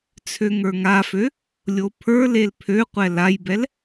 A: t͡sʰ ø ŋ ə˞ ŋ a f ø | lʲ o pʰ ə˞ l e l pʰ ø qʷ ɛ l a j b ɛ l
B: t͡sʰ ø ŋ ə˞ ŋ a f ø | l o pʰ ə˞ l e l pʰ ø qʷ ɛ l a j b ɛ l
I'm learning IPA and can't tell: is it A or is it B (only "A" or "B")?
A